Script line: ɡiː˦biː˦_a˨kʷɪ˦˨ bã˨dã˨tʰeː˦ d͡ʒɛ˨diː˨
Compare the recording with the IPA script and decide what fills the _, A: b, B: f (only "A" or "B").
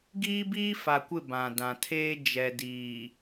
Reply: B